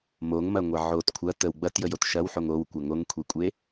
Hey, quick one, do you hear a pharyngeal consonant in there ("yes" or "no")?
yes